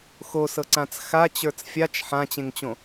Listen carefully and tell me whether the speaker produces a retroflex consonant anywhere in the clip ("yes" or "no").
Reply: no